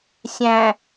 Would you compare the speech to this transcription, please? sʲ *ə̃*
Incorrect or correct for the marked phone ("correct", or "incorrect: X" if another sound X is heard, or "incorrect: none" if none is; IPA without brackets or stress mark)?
incorrect: æ̃